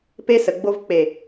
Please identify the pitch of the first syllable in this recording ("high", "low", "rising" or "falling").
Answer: high